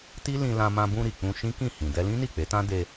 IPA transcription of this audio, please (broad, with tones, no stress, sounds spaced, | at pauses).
t i˦ l ĩ˧ l ã˧ m ã˧ b ũ˧ ɾ i˨ k͡p ũ˧ ʃ ĩ˦ k ĩ˦˨ h ĩ˨ d ɛ˧ l ĩ˦ n i˦˨ k͡p e˨˦ t ã˦ d e˧